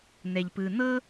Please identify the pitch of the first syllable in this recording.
low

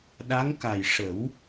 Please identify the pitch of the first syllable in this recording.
rising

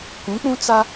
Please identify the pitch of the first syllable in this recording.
rising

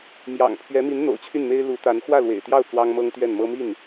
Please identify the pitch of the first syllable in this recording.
low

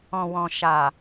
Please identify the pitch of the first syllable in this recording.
low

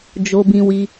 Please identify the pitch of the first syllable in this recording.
high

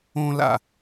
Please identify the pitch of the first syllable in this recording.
high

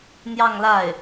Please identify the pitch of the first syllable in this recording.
falling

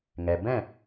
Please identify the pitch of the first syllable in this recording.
low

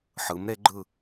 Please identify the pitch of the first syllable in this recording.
rising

